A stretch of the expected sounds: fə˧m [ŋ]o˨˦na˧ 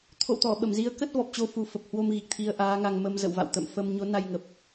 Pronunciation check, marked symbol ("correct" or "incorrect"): incorrect